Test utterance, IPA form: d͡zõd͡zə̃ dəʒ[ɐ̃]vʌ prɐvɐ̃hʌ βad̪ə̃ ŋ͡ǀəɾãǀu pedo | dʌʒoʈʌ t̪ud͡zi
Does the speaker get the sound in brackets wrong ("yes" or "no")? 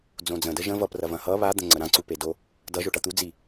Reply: yes